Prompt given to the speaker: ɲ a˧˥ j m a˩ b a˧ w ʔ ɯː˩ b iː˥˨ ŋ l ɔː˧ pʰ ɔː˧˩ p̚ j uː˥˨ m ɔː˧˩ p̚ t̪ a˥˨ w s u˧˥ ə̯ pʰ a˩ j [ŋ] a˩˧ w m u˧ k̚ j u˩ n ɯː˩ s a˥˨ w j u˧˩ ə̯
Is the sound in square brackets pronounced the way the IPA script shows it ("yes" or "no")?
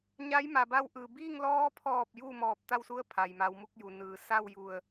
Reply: no